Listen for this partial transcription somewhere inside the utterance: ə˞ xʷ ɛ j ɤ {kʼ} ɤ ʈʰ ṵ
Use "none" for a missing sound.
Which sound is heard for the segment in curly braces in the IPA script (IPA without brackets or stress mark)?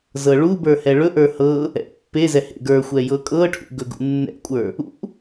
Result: kʼ